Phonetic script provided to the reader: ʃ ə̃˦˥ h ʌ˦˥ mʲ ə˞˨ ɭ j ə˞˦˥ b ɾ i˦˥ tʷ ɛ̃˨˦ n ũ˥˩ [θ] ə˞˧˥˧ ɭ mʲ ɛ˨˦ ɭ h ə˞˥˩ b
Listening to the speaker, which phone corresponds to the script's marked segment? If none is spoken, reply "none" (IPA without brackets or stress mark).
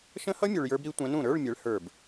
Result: ɾ